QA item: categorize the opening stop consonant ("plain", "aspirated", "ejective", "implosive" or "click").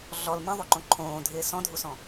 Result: click